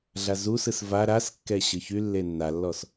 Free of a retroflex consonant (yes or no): yes